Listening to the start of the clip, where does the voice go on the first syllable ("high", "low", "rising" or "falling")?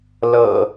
low